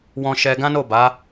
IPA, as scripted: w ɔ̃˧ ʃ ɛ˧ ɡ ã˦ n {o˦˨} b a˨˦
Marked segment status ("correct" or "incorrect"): correct